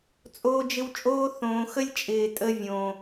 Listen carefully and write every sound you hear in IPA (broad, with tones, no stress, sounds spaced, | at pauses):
t͡sʼ oː˧ d͡ʒ ɪ˧ w t͡ʃʼ oː˦ θ õː˨ x ə˦ lʲ t͡ʃʼ ɪː˨ tʼ ə˧ vʲ õ˨